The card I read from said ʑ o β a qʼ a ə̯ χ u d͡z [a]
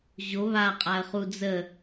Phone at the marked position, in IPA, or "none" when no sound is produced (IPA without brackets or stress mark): ə